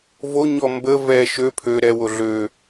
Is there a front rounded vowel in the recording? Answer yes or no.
yes